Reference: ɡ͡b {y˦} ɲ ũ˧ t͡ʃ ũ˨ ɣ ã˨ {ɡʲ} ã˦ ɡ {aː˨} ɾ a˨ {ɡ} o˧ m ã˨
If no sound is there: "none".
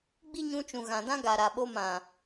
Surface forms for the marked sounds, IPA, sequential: i˦, d, a˨, ɓ

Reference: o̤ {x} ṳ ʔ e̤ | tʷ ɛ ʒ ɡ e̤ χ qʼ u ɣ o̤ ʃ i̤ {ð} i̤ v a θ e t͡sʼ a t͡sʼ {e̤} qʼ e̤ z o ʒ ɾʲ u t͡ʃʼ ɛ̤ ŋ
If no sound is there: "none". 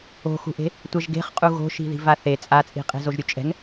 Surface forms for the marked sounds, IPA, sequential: x, ð, i̤

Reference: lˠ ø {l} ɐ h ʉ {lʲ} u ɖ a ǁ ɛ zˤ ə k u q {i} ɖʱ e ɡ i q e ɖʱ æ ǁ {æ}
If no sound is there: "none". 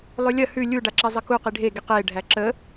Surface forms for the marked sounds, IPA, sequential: lʲ, lʲ, i, ə

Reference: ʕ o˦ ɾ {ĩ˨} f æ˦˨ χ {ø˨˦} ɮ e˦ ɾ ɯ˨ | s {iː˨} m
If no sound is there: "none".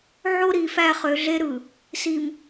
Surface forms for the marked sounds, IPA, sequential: i˨, ø˨˦, i˨

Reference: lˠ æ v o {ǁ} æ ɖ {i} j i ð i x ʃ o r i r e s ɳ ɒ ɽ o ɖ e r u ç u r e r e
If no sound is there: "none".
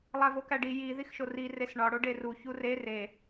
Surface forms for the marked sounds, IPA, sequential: k, i

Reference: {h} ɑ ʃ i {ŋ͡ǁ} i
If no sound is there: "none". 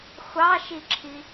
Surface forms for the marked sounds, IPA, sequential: xʷ, ǁʰ

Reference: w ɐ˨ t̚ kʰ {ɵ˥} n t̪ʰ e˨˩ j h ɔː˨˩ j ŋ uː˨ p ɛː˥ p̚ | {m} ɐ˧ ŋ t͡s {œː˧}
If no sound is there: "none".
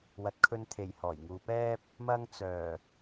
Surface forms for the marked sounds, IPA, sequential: ɵ˧, m, œː˨˩

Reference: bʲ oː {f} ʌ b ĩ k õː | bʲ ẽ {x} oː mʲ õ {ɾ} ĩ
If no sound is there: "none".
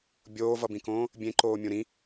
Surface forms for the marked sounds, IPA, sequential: v, ǃ, ɾ

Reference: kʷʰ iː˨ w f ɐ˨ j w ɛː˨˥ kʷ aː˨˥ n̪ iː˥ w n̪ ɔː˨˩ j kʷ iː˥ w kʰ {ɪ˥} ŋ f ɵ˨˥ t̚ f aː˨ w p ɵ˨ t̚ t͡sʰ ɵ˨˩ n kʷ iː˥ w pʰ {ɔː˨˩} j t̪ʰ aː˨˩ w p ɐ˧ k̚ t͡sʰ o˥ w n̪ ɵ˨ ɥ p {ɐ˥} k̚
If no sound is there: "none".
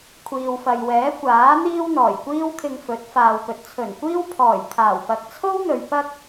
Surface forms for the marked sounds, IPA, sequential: ɪ˧, ɔː˨˩, ɐ˥

